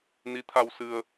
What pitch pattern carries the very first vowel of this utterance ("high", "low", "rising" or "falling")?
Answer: rising